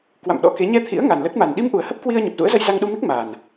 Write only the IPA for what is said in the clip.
k w a̰˧˨ m ɗ ɔ̰˧˥ k e˨˦ ɲ ɛ˧ t̪ʰ ḭ˧˥ ə̯ ŋ a˨˩ n l ə˦˥ t̚ m a˨˩ n ɗ i˧ m ʔ u˨˩ ə̯ h ə˦˥ p̚ k w i˧ ə̯ ɲ ə˨˩ p̚ z ṵ˧˥ ə̯ z ə˧ j z a˧ ŋ ɗ u˧ m i˦˥ k̚ m aː˨˩ n

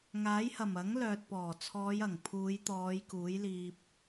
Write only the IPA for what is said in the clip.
ŋ aː˨˥ j h ɐ˨˩ m ɐ˨˥ ŋ l œː˨ t̚ p ɔː˨˩ t͡sʰ ɔː˨˧ j ɐ˨˩ ŋ pʰ uː˨˧ j t̪ ɔː˨˧ j k uː˨˥ j l iː˧ p̚

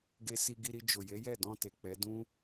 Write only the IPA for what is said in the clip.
ɡ e˧ s i˧ ɡ i˧ ɾ i˧ d͡ʒ o˨ j e˨˦ j ɛ˦˨ d ɔ̃˧ t e˨ k͡p ɛ˨˦ d ũ˦

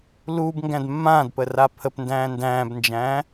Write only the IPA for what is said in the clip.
l uː b ŋ ɡ æ̃ d mː ãː d p ə r a pʰ ə p n d æ̃ː n d æ̃ː b n d͡ʒ æ̃ː

